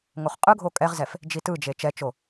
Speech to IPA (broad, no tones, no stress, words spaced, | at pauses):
ŋoχqʼɯɡʱo kʼɛʁzɛf | d͡ʒitɯd͡ʒe t͡ʃɛt͡ʃo